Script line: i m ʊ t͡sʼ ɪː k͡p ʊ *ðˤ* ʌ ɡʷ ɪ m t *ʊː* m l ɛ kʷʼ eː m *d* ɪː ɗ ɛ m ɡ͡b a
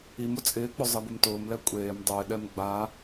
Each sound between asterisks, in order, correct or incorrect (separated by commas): incorrect, correct, incorrect